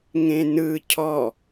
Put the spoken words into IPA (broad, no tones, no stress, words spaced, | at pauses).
ŋẽnɯ cʰɔ